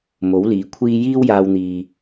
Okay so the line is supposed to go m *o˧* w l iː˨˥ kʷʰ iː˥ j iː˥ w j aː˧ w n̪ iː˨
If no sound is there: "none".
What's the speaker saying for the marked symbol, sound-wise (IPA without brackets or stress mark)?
o˨˥